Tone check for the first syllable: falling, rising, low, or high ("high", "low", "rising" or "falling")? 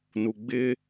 low